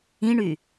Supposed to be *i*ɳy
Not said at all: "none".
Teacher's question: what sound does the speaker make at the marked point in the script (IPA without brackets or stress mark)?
ĩ